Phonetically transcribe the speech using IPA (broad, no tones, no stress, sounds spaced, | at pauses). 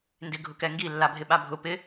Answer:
n d ɪ ɡʱ ʊ k ɛ ŋ ɡ i lː a bʱ ɪ ɓ a bʱ ʊ p ɪ